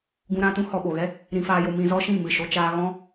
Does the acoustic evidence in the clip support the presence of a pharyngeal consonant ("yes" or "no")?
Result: no